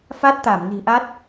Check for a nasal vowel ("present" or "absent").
absent